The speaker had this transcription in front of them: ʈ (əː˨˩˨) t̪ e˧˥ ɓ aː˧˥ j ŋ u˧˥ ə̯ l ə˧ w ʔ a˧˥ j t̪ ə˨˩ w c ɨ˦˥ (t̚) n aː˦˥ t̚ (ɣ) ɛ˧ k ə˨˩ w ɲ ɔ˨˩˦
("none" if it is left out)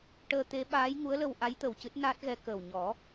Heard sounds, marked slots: əː˧, t̚, ɣ

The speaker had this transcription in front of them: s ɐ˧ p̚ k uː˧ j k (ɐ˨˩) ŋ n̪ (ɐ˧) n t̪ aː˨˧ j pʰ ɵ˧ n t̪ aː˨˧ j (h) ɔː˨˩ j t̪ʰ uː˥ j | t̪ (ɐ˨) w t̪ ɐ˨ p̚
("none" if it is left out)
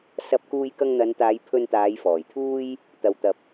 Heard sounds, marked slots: ɐ˧, ɐ˨˧, f, ɐ˨

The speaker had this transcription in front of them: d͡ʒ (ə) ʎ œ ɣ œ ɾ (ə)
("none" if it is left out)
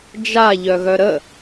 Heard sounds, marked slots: a, ə

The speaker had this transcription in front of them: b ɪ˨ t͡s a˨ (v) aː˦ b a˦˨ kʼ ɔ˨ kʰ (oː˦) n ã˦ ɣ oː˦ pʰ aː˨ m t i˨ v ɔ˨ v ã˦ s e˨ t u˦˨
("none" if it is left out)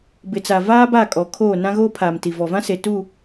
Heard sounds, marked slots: v, oː˦˨

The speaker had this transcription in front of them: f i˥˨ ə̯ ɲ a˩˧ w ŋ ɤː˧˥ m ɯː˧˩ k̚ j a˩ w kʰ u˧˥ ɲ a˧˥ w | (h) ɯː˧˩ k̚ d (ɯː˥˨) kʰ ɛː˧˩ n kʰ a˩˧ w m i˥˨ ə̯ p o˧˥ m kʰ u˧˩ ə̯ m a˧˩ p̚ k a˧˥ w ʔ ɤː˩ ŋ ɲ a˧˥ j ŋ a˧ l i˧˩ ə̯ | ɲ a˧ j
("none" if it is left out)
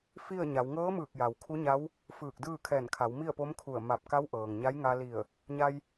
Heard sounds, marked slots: f, ɯː˥˨

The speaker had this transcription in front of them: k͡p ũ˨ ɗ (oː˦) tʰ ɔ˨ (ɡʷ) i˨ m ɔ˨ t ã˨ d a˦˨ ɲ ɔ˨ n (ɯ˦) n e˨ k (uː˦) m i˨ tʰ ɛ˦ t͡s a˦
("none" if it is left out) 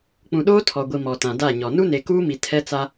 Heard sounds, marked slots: oː˦, ɡʷ, u˦, uː˦

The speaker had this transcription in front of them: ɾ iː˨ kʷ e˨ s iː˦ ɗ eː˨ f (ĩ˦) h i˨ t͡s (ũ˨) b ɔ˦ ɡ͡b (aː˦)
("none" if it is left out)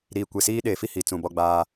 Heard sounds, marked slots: i˦, ũ˨, aː˦

